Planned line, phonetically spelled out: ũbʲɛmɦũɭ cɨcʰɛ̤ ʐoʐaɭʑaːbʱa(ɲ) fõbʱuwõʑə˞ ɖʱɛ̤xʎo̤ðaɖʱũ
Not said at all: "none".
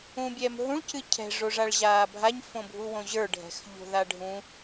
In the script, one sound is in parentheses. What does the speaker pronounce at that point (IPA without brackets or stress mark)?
ɲ